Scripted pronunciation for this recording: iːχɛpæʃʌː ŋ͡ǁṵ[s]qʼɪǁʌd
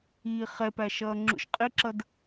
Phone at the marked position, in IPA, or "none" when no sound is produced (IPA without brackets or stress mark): ʃ